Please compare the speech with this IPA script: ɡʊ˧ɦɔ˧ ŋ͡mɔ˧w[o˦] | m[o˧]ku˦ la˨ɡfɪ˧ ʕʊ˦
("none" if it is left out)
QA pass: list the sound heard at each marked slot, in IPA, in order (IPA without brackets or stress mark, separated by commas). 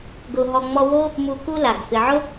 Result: o˦, u˧